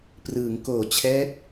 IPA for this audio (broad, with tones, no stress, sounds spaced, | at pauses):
p r ɯː˩˦ ŋ k oː˨˩ t͡ɕʰ ɛː˦˥ t̚